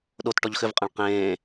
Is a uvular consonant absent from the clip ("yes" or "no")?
no